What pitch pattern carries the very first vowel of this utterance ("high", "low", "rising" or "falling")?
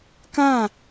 falling